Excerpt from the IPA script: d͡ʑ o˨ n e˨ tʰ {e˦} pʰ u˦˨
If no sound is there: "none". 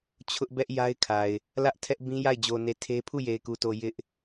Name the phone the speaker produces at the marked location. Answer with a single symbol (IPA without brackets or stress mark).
e˦